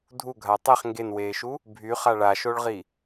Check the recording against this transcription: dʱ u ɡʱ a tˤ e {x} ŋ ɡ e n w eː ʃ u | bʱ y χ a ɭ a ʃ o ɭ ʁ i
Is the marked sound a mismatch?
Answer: yes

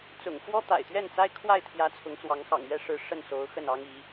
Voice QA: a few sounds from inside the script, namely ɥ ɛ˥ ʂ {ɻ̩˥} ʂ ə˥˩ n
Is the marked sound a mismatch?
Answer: yes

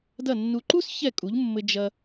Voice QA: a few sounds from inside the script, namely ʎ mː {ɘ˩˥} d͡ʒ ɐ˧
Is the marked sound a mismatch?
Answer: yes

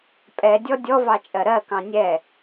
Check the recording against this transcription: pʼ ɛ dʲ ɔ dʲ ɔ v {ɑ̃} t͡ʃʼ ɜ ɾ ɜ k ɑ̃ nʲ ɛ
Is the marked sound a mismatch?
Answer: yes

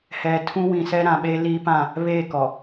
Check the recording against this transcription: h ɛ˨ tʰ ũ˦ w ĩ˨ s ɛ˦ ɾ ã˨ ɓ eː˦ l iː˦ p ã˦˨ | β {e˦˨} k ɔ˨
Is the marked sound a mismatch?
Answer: no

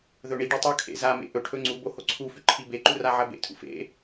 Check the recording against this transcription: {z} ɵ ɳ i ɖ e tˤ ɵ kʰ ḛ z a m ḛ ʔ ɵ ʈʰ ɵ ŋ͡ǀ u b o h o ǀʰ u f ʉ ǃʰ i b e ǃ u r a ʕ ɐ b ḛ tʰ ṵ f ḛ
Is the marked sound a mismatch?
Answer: yes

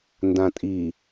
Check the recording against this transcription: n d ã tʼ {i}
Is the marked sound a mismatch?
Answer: no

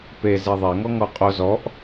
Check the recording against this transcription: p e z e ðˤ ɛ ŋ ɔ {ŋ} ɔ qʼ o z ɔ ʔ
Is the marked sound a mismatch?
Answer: no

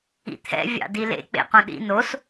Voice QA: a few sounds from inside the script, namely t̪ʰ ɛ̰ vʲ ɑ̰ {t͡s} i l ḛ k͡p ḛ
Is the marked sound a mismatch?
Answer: yes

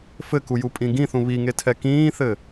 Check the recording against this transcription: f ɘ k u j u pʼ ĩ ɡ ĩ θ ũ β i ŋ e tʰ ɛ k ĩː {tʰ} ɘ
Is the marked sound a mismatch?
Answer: yes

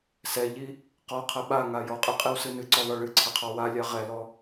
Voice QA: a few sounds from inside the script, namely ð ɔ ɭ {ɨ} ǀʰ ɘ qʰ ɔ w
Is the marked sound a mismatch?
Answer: no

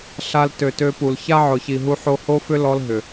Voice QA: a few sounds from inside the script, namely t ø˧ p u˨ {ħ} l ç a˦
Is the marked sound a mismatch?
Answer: yes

